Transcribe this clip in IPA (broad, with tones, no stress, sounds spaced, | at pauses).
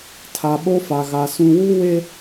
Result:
tʰ a˨ ɓ o˦ f a˨ ɣ a˨ s ũ˨ w u˦ w e˦